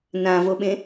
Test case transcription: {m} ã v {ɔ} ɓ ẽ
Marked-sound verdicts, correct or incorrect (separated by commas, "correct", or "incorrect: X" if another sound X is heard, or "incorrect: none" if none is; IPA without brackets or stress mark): incorrect: n, incorrect: o